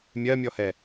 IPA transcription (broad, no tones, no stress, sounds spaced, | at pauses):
mʲ ɜ mʲ ɔ h ɛ